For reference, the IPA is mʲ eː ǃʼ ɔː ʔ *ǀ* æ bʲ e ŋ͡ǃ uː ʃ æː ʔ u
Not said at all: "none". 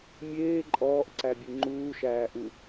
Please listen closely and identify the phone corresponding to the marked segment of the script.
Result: ǀ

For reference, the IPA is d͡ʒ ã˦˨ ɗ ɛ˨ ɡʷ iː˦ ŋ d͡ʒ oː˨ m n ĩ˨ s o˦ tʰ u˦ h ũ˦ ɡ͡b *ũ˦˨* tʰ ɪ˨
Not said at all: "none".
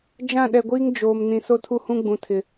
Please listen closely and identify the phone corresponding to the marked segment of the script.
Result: ũ˨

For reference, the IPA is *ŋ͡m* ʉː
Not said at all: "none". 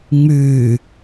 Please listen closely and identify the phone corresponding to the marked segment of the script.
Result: ŋ͡m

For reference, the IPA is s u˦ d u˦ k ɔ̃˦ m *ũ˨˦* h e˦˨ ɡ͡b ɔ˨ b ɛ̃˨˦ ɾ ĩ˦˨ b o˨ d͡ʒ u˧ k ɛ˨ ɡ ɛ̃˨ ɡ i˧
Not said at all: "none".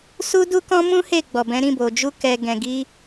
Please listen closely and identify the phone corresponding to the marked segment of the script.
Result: ũ˦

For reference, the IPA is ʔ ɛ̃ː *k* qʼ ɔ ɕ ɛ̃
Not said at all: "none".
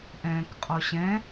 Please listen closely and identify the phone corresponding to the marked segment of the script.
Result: k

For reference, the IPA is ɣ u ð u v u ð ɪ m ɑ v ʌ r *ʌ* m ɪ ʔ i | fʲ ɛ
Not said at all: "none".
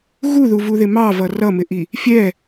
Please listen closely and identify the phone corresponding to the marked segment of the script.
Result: ʌ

